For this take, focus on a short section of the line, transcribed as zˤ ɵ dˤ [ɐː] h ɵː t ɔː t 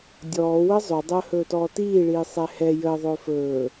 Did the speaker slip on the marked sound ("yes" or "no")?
yes